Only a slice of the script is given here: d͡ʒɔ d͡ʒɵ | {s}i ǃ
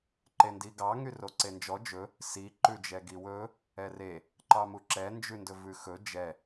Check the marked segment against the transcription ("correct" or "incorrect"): correct